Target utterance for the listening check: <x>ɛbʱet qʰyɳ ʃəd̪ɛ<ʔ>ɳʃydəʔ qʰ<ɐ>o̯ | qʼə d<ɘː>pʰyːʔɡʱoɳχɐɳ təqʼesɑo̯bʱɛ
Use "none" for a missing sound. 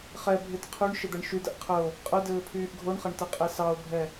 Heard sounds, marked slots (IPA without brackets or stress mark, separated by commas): χ, none, ə, ɘː